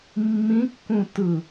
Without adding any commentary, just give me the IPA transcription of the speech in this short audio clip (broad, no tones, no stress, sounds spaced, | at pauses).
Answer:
mː ĩ kː ũ t ɯ